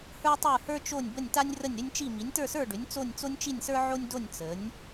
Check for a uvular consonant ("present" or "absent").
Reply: absent